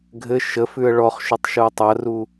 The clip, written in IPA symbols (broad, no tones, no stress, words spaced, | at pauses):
ɡʱɘ ʃəfʉə̯ ɭɔχʃʉtˤʃuə̯ tˤɐru